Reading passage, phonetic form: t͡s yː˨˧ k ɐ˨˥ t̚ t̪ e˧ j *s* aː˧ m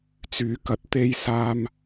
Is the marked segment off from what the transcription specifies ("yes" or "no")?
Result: no